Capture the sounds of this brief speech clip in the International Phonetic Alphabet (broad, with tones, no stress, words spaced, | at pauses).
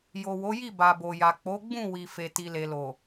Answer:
jo˨wo˨˦ji˦˨ ba˨bo˨ja˨ k͡po˨˦ɡ͡bũ˦˨ wi˨ fe˨ti˨le˨lo˨